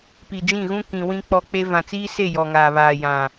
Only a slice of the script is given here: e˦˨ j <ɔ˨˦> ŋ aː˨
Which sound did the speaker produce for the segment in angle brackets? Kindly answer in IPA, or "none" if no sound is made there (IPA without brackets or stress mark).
ɔ˨